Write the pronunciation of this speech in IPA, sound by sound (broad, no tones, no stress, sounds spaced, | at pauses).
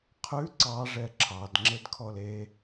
qʰ ʉ ǀ ɑ ʐ ɛ ǁʰ ɑ d ŋ͡ǁ e d kʰ ɔ l e